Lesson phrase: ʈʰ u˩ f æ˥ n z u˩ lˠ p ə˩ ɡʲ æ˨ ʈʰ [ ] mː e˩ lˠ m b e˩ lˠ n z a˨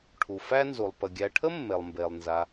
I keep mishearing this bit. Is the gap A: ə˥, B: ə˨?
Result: A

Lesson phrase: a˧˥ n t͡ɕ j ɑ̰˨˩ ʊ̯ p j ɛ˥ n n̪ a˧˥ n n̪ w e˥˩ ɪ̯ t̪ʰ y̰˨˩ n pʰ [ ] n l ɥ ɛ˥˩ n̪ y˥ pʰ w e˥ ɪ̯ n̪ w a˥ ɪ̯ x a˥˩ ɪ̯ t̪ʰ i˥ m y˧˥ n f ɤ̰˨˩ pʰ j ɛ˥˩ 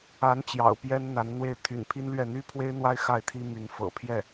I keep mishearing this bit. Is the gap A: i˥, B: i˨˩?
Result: A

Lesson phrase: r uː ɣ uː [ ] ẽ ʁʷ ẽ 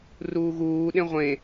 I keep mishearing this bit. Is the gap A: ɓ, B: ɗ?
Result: B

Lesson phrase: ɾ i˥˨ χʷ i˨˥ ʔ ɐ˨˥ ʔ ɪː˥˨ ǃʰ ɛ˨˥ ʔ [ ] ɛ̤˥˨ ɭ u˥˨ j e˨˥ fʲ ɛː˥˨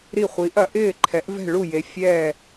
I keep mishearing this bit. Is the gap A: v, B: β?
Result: A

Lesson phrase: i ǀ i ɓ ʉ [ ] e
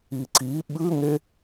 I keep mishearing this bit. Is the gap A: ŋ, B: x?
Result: A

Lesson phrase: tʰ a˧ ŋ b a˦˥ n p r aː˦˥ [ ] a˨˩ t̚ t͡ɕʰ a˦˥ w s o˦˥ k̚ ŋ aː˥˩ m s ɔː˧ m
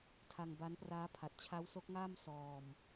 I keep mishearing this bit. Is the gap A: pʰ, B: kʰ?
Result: A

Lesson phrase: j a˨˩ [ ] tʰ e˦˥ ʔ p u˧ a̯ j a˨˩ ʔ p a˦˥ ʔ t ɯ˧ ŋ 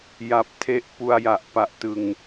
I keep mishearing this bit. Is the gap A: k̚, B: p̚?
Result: B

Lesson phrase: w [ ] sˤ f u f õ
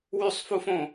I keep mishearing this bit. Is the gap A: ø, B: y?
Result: B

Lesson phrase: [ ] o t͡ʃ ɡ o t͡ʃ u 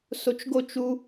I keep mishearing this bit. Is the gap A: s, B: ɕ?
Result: A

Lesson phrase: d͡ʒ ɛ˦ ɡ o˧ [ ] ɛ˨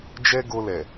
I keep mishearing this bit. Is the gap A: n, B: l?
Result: B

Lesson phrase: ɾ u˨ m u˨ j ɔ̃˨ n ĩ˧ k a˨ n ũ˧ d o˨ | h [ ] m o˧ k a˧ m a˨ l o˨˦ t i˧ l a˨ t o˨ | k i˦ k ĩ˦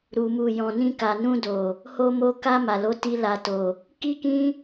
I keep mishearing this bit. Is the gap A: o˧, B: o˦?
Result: A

